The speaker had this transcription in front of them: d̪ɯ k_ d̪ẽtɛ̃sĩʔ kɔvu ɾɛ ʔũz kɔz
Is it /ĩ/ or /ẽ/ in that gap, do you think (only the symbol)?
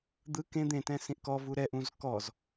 ẽ